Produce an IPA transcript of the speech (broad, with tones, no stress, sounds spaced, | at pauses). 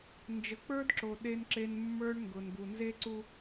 n d͡ʒ ə˨ k͡p ə˞˦ d ǁ o˨ ɗ e˦ n ǁ e˦ n mː ə˞˦ ɳ ŋ ɡ ʊ˨ n ɡ u˨ n z e˦ ǀ u˦